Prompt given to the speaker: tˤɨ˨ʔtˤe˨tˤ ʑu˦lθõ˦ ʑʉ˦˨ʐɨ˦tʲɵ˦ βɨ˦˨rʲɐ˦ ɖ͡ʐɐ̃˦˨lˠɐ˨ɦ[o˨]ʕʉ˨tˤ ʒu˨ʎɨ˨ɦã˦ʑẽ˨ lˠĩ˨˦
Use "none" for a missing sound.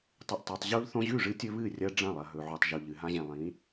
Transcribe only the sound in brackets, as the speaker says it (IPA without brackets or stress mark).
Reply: ɵ˨